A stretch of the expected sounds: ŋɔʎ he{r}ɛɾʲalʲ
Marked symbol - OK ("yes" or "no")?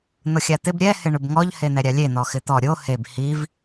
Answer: no